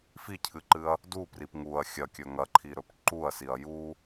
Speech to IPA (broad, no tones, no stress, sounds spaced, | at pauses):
f i cʰ ɨ ǃ ɨ ɐ̯ | d u p r i p ŋ u ɐ̯ xʲ ɐ kʲ ɵ ŋ ɐ ǃʰ i ɾ ɵ p ǃ u ɐ̯ s i ɐ̯ j u